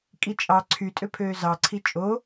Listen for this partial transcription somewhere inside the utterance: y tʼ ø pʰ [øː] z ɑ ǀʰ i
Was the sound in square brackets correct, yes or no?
yes